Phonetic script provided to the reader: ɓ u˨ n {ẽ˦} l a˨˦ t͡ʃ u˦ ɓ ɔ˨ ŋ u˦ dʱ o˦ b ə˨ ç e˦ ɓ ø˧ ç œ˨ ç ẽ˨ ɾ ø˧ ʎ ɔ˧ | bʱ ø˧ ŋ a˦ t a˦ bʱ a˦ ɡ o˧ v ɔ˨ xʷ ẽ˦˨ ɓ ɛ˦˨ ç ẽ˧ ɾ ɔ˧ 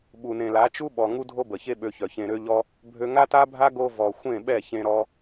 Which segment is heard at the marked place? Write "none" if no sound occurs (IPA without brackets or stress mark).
ẽ˨